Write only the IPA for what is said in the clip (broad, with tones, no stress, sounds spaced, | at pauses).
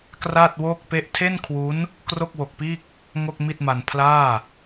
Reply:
k r aː˥˩ t̚ w oː˥˩ k̚ p e˥˩ ʔ tʰ e˥˩ n kʰ w u˦˥ n | k r o˥˩ k̚ w o˨˩ k̚ p iː˥˩ k̚ | ŋ o˥˩ k̚ m i˥˩ t̚ m a˧ n pʰ l aː˥˩